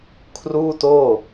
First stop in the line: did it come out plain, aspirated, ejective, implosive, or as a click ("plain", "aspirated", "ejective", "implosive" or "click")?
aspirated